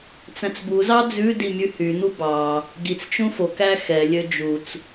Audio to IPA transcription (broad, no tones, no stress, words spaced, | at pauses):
t͡sæ̃t͡sbuzɑ d͡zʉdi mʲʉhyn̪u bɑ | ɡit͡st͡ʃũ fokæ xɛlʲø d͡ʒut͡s